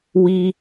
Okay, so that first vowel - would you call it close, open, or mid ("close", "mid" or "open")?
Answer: close